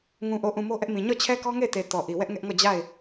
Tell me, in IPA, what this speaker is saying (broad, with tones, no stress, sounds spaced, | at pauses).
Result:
ŋ ũ˨ ʔ o˨ ʔ ũ˨ m o˦ ʔ ɛ˦ ʔ m ĩ˨ ɲ ɔ˦˨ t͡ɕʰ ɛ˦ k ɔ˦ ŋ e˦˨ ɪ̯ t e˨ t ɔ˨ ʔ i˨ w ɛ˦ ʔ ŋ ɛ˦ ʔ ŋ ɔ˦˨ d͡ʑ a˦˨ ɪ̯